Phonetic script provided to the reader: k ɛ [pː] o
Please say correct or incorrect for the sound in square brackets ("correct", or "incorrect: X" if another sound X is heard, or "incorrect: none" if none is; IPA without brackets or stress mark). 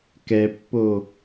correct